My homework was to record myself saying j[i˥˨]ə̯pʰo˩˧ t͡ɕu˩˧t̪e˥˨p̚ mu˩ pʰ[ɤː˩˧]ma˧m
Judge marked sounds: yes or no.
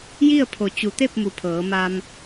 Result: yes, yes

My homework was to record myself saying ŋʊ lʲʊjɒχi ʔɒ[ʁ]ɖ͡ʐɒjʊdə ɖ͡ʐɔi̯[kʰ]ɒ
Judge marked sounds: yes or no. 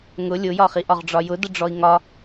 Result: yes, no

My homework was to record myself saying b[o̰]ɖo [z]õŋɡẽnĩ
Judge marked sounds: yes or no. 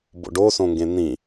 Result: yes, no

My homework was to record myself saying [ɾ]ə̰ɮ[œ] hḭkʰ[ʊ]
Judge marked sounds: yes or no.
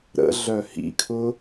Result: yes, yes, yes

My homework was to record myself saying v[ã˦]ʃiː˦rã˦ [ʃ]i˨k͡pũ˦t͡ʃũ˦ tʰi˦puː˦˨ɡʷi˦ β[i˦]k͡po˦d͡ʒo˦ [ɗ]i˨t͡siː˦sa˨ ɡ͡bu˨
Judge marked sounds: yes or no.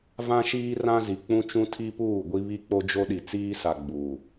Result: yes, no, yes, yes

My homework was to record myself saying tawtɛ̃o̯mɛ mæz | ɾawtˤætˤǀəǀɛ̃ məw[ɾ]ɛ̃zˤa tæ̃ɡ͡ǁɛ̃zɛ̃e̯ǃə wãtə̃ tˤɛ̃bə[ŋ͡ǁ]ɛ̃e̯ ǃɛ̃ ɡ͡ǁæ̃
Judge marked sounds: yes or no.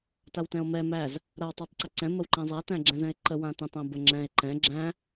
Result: no, yes

